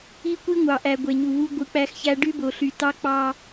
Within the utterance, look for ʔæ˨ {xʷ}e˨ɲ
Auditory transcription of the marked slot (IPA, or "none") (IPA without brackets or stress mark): ɡʷ